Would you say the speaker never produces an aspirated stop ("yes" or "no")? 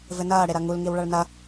yes